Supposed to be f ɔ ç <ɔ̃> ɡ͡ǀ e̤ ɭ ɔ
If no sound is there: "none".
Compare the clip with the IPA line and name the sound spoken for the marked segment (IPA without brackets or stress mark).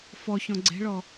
ɔ̃